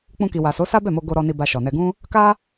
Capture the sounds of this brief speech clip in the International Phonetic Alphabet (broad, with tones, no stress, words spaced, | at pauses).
k͡pũ˧ki˨wa˨so˨˦ sa˦bɛ˦˨mo˧ ɡo˧ɾɔ˧ni˧ ba˧ʃɔ˨nɛ˧ɡũ˦ | ka˦